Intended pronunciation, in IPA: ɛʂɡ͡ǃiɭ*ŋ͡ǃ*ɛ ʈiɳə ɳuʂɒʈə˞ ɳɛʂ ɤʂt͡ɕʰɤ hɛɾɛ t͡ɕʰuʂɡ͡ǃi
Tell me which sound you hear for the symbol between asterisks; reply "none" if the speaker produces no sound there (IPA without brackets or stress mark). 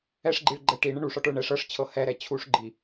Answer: ɡ͡ǃ